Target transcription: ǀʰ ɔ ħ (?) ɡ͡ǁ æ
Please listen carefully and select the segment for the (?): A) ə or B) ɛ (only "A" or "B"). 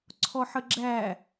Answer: A